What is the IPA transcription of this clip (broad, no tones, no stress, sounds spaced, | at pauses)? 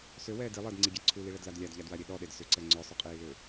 s ø w ɛː d i lˠ əː d ŋ͡ǀ i ɡʲ ɛ ǀʰ u l i ɭ ɛ d l a d lʲ a d ʎ a d w a ɾʲ e ɗ ɔ ɗ e d s ʏ ǀ ɛ ŋ͡ǀ œ sˤ ʏ qʼ iː l ø